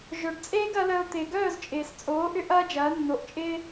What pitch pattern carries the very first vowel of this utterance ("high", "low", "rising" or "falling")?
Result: low